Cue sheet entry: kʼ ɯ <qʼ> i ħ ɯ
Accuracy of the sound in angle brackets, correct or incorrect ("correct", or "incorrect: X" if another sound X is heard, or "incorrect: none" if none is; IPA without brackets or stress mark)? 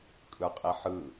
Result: correct